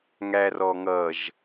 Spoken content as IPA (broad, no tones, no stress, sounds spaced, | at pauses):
ŋ æ r ɔ ŋ ʌ ʒ